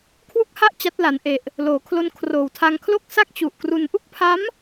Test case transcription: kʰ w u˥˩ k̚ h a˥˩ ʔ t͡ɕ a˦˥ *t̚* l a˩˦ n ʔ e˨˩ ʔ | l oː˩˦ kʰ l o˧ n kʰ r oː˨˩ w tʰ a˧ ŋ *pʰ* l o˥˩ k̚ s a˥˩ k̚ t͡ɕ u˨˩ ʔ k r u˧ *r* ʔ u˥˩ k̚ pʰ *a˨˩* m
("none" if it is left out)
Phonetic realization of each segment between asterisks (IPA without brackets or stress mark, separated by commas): t̚, kʰ, n, a˦˥